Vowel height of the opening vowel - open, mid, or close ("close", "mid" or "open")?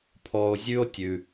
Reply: mid